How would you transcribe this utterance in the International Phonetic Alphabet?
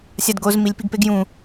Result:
sʲ a d ɡ o z m i lʲ p i ɡ p e ɡ j ũ

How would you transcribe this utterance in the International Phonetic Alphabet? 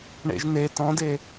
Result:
ɳ ḛ ʒ n e t ɔ̃ d e

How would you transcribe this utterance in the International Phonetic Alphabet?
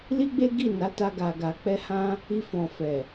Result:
l i˦ ɡ͡b e˦ ɡ i˦˨ n a˨˦ t a˦ ɡ a˧ ɡ a˧ k͡p ɛ˦ h ã˦ | i˧ f ɔ̃˨ f ɛ˨

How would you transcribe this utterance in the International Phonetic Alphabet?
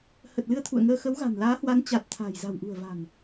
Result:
h ə˨˩ t̚ l ɨ˧ ə̯ t̪ʰ ṵ˧˨ ə̯ ŋ əː˧ x ə˨˦ w ɣ a̤˨˩ n l aː˨˦ h w a˨˦ n t͡ɕ a˨˩ t̚ t̪ʰ a̤ː˨˩ j z a̤˨˩ w ʔ ṳ˨˩ ə̯ v a̤˨˩ n

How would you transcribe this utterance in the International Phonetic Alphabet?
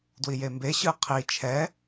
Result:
d w i j e m b e ɕ ɯ qʰ i t͡ʃʰ ɛ

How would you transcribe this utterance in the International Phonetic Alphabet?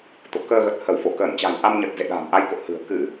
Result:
t̪ o̰˧˨ k əː˧ ɣ ə˨˩ t̚ h ə˧˩ w f o˧˩ k əː˧˩ n t͡ɕ a̤˨˩ j ʔ a˧ m ɲ ə˨˩ t̚ z ḛ˧˨ ɗ a̤ː˨˩ m ʔ a˧ j k o̰˧˨ h ɨ̤˨˩ ə̯ k ɨ˧˩˨

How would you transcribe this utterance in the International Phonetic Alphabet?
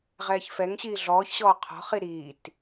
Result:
ʁ ɛː ç f ɛ ŋ ɕ iː ɮ ɔː ç ɕ ɔː qʰ ɔ̤ χ i ɾ iː t

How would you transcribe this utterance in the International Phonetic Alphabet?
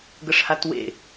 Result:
ɡ ə ʂ h a t w ḛ

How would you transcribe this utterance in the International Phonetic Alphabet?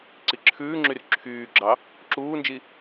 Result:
ǀ i ǁʰ ʉː ŋ͡ǁ y r ǁʰ yː ɡ͡ǁ ɑ | ǁ uː n d͡ʒ i

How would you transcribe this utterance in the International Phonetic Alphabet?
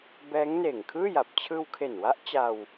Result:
b ɛː˦˥ ŋ n eː˨˩ ŋ kʰ ɯː˥˩ j a˨˩ p̚ t͡ɕʰ ɯː˧ w kʰ e˨˩ n w a˦˥ ʔ t͡ɕ a˧ w

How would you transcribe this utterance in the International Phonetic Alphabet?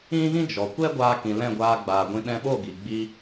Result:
ĩ˦ ɣ ĩ˦ d͡ʒ ɔ˨ kʷ ɛ˦ ɡʷ aː˧ k ĩ˨ l ɛ̃˦˨ ɡʷ aː˧ ɡ͡b aː˨ ɡʷ ĩ˧ ɗ ɛ̃˧ ɓ o˦˨ ɡ i˨ ɡ͡b i˦

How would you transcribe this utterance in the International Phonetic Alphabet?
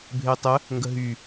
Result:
bʱ e tˤ ə | ŋ ɡ ə ɦ y

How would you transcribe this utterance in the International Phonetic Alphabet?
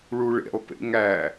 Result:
ɭ u ɭ ḛ lˠ p ḛ ŋ æ

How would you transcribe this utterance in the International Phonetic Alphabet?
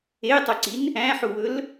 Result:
e tˤ ø ǀ i n | æ̃ ħ u w ɵ l

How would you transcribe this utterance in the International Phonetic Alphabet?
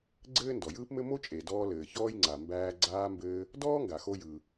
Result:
ɡ͡ǀ ɘː˥ n d ɔ˩ j ɯː˥ p m ɘ˥ m o˥ t͡ʃʼ e˩ d ɔː˧ l ɘː˩ ç ɔː˥ j ŋ͡ǀ a˩ m b æː˧ ɡ͡ǀ aː˧ m b ɘː˧ | d ɔː˥ ŋ ɡ a˩ x o˧ j ɯ˩

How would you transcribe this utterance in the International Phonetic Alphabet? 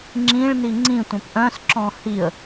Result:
ŋ͡ǁ ĩ ɭ n i ŋ͡ǀ ĩ tʷ œ̃ p ʔ œ̃ s ǁ ɔ̃ h i ə̯

